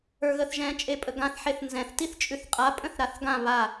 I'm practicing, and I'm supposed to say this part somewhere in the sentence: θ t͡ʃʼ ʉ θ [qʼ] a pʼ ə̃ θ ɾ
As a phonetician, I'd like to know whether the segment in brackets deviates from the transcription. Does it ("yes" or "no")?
no